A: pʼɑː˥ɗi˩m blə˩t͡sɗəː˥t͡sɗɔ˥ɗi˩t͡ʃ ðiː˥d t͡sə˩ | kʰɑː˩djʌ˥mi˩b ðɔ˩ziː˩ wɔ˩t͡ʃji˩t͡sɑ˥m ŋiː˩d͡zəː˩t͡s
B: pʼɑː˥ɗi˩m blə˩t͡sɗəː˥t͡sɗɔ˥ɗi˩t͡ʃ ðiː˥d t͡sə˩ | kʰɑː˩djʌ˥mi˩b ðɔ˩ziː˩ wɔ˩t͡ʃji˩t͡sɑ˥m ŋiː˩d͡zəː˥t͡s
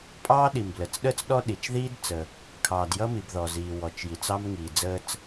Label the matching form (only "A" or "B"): B